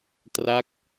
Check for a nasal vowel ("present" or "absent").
absent